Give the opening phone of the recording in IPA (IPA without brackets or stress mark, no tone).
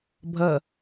bʱ